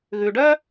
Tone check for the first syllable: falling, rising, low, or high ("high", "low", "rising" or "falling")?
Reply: low